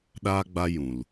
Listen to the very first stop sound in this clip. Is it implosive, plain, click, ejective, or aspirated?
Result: implosive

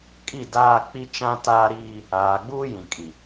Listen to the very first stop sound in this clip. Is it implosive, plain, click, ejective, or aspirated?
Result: ejective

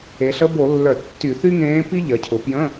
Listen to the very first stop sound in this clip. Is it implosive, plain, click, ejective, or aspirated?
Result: plain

